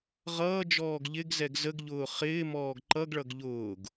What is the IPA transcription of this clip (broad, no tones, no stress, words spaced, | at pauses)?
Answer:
ʁʌːd͡ʒɔːɡ ʎɪɡzɛɡ zəɡʎʊː χɪːmɔːɡ ǃʌɡɭʌɡ ʎʊːɡ